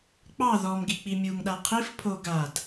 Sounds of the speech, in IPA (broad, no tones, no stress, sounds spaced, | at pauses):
k͡p ɑ ð ɔ m ɡ i k͡p i mʲ u ŋ ɗ a qʰ i f pʰ o ɡ a d